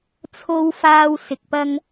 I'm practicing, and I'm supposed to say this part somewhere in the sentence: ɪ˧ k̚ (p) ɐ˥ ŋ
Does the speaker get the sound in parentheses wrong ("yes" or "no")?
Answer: no